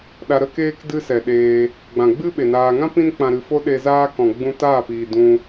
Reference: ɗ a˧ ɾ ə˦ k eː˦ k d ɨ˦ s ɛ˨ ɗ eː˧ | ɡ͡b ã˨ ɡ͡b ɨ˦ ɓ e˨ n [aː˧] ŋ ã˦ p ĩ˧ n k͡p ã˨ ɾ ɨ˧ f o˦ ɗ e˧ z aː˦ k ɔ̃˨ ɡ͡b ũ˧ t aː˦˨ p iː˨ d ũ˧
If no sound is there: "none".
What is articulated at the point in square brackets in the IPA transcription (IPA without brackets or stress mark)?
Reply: aː˧